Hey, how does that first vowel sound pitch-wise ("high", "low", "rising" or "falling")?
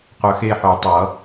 low